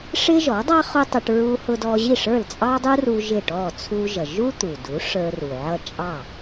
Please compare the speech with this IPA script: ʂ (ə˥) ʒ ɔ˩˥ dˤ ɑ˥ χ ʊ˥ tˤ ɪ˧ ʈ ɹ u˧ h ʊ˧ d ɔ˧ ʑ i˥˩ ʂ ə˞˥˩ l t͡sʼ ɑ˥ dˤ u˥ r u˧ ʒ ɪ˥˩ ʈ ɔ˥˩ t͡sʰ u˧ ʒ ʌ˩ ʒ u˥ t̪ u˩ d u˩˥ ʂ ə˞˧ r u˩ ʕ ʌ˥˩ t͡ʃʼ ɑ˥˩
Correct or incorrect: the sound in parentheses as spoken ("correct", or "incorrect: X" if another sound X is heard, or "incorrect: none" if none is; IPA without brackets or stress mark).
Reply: incorrect: ɪ˥